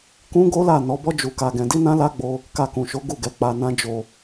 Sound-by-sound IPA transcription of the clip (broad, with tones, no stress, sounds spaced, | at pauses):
k ũ˦ ɡ o˦ l a˦˨ n ɔ˨˦ b ɔ˦ d͡ʒ u˧ k a˧ ɡ ɛ̃˧ d i˦ n ã˦ l a˦ ɡ͡b o˧ | k a˧ k ũ˨ ʃ o˨˦ ɡ u˦˨ ɡ ɛ˨˦ k͡p a˧ n ã˦ d͡ʒ o˧